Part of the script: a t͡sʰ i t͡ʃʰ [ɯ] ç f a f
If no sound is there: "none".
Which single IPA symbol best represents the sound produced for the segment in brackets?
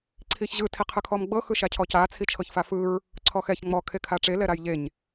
ɤ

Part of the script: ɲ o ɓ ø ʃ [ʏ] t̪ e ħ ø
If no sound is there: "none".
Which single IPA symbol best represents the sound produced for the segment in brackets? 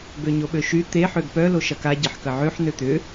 y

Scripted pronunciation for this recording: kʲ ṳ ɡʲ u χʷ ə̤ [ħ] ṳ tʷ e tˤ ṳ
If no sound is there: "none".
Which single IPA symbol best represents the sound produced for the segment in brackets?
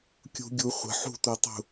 ħ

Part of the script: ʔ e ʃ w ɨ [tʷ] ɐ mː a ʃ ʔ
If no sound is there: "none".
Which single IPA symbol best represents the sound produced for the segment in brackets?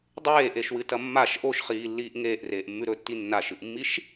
t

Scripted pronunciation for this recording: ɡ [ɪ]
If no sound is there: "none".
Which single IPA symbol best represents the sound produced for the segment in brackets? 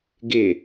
ɪ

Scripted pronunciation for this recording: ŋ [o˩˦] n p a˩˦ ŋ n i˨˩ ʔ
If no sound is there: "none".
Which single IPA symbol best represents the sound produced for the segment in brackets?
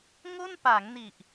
o˥˩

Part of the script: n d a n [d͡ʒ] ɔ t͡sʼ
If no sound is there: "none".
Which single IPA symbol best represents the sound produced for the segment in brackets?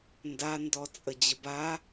d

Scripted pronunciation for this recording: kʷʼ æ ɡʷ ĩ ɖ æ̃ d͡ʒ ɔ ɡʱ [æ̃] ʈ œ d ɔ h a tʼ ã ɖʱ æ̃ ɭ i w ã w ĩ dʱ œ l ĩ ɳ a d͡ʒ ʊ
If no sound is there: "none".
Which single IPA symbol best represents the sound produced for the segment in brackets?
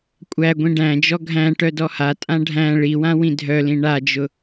æ̃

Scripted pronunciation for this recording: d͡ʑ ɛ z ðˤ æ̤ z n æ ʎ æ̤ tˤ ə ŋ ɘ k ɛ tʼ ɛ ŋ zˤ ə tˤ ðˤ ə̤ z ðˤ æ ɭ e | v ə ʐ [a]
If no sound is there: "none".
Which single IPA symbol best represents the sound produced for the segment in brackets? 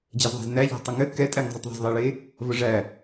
æ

